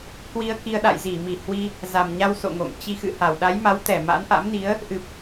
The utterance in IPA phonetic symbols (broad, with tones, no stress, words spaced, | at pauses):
kwi˧ə̯ki˧ə̯ ɗa̰˧˨jzi˧˩mi˧˩ hwi˧ | za˨˩mɲa˧w so̰˧˨ŋo̰˧˨ŋ t͡ɕi˧xɨ̰˧˨ ha˧˩wɗa˨˦jma˨˦wt̪ɛ˧˩ ma̰˧˥nʔa̰˧˥mni˨˦ə̯ | ʔɨ˨˩p̚